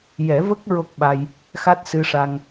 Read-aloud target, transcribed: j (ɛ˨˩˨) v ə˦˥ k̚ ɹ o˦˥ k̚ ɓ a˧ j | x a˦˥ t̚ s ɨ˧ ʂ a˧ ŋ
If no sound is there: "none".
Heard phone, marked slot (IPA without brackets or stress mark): ɛ˨˩˦